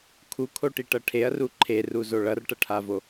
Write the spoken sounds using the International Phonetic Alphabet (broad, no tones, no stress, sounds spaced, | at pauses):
kʰ u kʰ o ʈ i ʈ ʌ ʈʰ e ɐ̯ r u ǃʰ e r u z o ɭ ʌ r ʈ ʌ ʈʰ a v o